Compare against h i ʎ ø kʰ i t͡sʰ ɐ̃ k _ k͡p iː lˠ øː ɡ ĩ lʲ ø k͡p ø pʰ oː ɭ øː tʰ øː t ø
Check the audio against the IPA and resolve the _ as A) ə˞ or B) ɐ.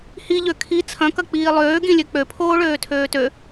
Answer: B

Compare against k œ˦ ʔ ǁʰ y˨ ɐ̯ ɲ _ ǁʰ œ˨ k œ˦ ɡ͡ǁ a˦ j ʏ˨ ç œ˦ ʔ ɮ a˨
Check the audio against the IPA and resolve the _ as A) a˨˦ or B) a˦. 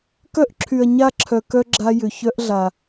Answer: B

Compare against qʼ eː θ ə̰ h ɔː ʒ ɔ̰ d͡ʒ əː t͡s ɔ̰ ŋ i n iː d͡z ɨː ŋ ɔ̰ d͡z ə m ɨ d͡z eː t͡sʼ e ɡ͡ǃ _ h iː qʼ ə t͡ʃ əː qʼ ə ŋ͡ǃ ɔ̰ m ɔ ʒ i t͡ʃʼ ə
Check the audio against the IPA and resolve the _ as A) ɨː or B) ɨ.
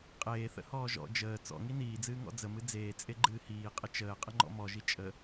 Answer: A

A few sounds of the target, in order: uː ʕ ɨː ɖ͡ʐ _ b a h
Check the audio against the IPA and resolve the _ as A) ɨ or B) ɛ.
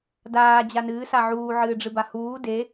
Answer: A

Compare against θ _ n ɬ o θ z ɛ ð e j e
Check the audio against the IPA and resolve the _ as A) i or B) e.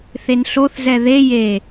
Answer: B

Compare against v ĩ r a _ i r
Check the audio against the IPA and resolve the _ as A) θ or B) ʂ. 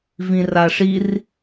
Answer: B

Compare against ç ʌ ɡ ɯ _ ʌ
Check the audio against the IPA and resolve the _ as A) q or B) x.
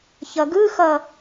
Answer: B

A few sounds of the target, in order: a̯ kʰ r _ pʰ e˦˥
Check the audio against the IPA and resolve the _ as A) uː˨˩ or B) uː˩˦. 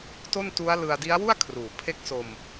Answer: B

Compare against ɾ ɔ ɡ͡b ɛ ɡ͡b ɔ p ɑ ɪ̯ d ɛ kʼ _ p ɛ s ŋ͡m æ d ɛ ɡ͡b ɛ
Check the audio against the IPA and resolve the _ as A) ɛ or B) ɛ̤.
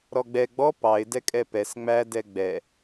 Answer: A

